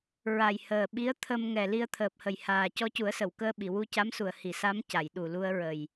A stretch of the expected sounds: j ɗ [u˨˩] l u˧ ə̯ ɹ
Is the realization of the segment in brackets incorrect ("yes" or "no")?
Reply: no